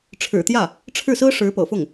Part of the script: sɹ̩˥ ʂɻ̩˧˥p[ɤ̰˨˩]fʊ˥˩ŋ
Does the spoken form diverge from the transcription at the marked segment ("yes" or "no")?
no